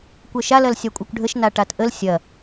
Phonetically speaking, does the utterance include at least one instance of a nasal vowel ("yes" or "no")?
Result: no